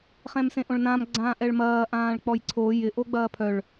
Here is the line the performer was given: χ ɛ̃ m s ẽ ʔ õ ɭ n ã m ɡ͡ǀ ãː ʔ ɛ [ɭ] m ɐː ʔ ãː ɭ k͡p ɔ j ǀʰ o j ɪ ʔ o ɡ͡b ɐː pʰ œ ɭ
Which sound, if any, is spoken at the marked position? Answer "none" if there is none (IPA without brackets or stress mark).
ɭ